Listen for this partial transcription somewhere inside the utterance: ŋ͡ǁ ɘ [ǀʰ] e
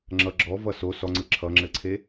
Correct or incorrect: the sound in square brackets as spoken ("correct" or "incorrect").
correct